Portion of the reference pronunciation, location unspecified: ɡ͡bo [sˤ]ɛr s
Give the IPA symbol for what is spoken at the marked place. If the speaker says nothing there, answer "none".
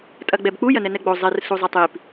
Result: zˤ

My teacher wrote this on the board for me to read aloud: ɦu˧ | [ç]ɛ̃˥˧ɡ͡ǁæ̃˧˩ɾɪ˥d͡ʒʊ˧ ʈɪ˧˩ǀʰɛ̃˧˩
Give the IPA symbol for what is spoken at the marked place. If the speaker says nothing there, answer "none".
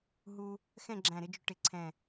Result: x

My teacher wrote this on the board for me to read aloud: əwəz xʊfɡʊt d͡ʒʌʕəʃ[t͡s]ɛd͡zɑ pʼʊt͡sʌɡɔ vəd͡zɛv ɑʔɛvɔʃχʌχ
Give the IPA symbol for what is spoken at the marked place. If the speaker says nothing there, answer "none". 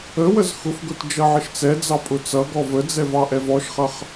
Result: t͡s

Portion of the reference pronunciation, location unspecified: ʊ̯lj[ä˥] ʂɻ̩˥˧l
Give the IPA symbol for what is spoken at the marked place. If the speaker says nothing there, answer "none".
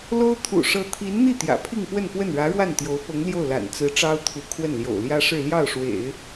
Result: ä˥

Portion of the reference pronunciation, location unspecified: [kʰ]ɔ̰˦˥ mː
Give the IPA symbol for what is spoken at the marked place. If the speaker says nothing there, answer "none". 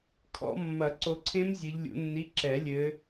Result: kʰ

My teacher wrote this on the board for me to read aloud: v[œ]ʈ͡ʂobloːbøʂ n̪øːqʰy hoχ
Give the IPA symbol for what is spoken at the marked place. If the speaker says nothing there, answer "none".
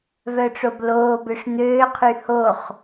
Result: œ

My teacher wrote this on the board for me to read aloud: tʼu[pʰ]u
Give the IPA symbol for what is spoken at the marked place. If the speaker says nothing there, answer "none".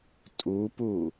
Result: p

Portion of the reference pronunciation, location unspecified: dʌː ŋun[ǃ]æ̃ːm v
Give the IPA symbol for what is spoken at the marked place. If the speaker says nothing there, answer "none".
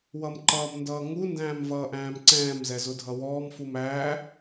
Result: d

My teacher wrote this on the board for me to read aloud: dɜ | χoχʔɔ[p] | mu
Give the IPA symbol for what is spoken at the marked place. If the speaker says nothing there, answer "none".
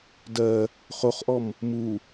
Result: m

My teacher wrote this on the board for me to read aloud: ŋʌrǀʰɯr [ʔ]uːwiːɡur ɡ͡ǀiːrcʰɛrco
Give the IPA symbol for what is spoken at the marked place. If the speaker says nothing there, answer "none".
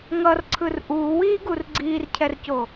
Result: ʔ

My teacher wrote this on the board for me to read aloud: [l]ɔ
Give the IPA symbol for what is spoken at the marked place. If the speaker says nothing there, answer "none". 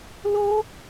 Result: l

